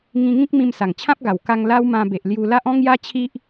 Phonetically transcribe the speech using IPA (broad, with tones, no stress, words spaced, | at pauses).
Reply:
ŋĩ˧ŋĩ˦k̚ mĩ˧msa˨˩ŋt͡ɕʰã˦p̚ ɡa˨˩wka˧ŋ la˦wmã˧ be˨ʔlju˧la˦ʔ ɔ̃˦ŋja˦t͡ɕʰi˦ʔ